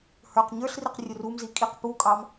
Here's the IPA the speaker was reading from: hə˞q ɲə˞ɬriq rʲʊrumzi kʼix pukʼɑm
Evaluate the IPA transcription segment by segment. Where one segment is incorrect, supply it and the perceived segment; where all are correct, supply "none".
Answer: x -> q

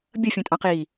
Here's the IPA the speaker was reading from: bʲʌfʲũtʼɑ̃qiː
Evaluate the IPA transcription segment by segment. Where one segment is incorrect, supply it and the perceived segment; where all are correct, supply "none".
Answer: none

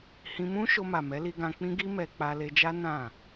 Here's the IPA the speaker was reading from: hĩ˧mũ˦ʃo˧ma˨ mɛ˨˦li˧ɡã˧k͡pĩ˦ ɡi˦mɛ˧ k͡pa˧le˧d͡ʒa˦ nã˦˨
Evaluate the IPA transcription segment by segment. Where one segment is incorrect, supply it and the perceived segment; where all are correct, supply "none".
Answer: none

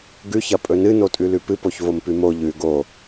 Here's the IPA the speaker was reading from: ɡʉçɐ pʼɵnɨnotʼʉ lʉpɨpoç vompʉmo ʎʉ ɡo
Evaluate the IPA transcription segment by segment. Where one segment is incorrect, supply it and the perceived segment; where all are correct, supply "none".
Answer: none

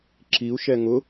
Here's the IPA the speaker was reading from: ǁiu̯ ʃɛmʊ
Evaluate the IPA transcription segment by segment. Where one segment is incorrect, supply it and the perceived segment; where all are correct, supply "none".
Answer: m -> ŋ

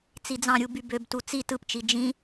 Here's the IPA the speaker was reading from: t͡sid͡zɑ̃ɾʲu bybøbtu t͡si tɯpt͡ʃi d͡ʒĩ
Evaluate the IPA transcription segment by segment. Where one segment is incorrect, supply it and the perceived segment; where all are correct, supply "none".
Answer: none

